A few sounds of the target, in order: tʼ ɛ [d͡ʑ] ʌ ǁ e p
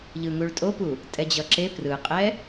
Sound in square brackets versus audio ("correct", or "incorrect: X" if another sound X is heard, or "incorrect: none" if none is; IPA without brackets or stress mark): correct